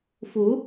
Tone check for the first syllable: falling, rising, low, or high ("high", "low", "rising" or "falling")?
rising